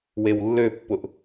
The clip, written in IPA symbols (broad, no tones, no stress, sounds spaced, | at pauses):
w e w lː ø pː ʊ ʔ